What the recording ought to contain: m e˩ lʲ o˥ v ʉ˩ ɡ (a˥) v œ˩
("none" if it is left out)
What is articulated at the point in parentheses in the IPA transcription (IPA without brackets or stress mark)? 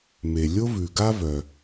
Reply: a˥